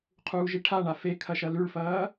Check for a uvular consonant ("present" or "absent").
present